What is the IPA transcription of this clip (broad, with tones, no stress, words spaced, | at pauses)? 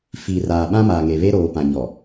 fiː˨r aː˨ɓã˦maː˨ ŋe˨βe˦ɾoː˨ pã˨ɲɔ˨